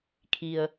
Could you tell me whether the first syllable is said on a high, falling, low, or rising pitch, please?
low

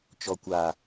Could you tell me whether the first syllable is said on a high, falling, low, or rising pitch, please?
low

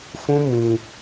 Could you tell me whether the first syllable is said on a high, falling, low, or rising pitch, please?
high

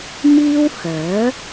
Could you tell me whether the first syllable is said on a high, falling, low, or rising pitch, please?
high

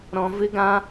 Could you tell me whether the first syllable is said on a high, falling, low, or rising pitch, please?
high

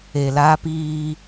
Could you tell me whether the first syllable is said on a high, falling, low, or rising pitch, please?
low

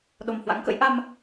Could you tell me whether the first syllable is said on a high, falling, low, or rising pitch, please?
low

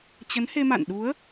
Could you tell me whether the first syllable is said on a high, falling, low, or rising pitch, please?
rising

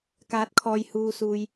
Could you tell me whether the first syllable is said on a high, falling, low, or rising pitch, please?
rising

